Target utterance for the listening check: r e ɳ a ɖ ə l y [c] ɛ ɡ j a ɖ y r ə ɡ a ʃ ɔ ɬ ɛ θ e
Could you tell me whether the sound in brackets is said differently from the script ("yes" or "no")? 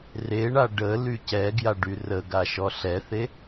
no